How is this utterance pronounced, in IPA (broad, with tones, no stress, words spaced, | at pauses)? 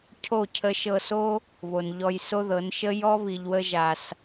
cʰo˦˨cʰə˧ ʃɤ˧so˦ | βo˨nʎɔ˧jso˦ðɤ˨˦n ʃə˦ jɔ˦βi˨ʎwə˧ʒa˨s